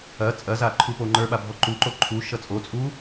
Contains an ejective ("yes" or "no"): yes